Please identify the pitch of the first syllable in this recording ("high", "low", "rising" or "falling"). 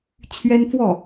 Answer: high